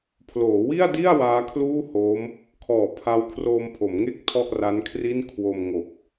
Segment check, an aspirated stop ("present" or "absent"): present